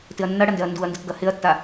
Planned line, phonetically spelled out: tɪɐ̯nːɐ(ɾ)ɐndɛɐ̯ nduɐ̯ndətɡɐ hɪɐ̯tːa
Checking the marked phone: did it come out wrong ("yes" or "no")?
yes